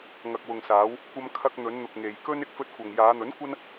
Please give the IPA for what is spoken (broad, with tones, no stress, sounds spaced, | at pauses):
ŋ ɐ˨ k̚ w ʊ˨ ŋ s aː˨˧ w | kʷ ɐ˧ m kʰ ɐ˧ k̚ n̪ ɵ˨˧ n n̪ ʊ˨ k̚ ŋ e˨ j k ɵ˥ n ɪ˧ k̚ f ɵ˧ t̚ kʷ ɐ˨ ŋ j aː˨˧ n̪ ɵ˨˥ n kʷ ɐ˥ n